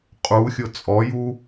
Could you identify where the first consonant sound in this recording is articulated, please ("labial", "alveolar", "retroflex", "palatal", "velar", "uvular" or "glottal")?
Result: uvular